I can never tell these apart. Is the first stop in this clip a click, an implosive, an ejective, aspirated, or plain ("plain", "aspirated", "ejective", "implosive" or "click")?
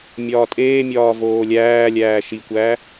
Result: ejective